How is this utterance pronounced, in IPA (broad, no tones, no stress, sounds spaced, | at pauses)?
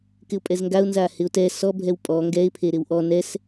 k ɪ ʊ̯ pʼ ɛ z ŋ ɡ a ʊ̯ n z a h ɪ ʊ̯ t ɛ s ɔ bʱ ɛ w pʼ ɔ ŋ ɡ ɛ ɪ̯ pʰ e ɾ ɪ w ʔ ɔ n ɛ s